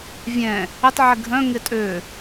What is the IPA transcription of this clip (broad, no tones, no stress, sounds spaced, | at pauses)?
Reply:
vʲ ɛ̃ | ɪ tˤ ʕ ɪ ɡʱ œ̃ ŋ ɪ tʼ ø